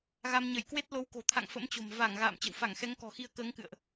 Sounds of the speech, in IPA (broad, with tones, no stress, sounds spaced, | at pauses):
ɣ a˧ m ɲ ə˧˩ j k w e˦˥ t̚ l o˨˦ w k o̤˨˩ t̪ʰ a̰˧˨ ŋ f ə̰˧˥ m t͡ɕ o̤˨˩ m v a˧˩ ŋ ɣ a̰ː˧˨ m t͡ɕ ə̰˧˨ w f a˧˩ ŋ x ɛ˨˦ ŋ k ɔ̤˨˩ x i˧ ə̯ k əː˨˦ ŋ k ɨ̰˧˨ ə̯ ʔ